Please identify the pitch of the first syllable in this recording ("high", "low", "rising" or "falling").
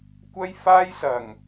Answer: high